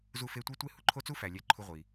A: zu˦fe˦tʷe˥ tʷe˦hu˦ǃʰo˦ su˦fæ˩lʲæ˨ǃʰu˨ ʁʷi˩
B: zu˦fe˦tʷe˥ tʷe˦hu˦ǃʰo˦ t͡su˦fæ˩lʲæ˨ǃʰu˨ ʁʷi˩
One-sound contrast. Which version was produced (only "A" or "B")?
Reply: B